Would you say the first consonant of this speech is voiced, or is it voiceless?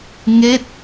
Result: voiced